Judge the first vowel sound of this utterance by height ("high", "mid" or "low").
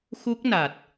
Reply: high